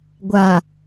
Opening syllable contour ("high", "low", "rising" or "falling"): low